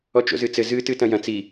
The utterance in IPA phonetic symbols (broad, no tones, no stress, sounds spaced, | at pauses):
ɔ t͡ʃ o̰ z ɨ t͡s ɘ z ɨ t ɨ t ɐ̃ j ɐ̃ t͡s i